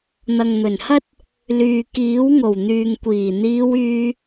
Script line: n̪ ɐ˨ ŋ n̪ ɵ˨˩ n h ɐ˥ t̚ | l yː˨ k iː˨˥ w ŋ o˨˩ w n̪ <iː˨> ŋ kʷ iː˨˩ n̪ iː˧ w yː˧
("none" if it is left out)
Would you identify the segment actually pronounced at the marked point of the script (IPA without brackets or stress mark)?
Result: yː˨